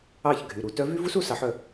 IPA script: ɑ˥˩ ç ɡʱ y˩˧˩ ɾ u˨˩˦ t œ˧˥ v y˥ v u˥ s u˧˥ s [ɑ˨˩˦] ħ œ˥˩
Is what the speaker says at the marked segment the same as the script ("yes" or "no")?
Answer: yes